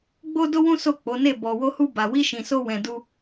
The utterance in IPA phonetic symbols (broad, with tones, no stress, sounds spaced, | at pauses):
ɡ͡b o˦ d o˦ w ũ˦ s o˦˨ k͡p o˨˦ n e˦˨ b ɔ˧ w o˦ h u˦ b a˧ w i˦ ʃ ĩ˧ s o˦ w ɛ̃˧ d u˦